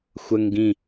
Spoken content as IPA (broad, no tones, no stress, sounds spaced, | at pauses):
xʷ ə ŋ ɡ ĩ